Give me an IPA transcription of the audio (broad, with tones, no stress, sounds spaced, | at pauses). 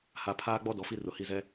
h a˨ pʰ aː˦ ɡ͡b ɔ˦ d ɔ˨ f i˦ r ʊ˨ h i˦˨ z ɛ˦